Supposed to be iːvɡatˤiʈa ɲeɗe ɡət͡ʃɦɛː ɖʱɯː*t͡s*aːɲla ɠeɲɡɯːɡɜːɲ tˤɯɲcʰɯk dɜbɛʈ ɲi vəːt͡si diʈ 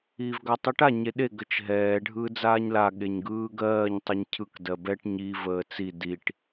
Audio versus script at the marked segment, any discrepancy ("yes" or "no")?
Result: yes